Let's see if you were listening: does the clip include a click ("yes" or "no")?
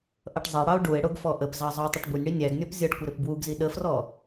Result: no